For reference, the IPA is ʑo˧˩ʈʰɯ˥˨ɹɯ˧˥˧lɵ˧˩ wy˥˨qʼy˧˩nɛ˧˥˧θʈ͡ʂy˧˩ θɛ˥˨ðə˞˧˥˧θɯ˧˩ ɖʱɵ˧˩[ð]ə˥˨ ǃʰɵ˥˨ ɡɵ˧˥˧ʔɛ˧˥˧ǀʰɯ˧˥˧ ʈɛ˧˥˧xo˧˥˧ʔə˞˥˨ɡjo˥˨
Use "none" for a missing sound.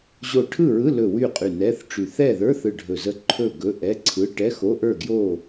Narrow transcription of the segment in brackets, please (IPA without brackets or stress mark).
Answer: z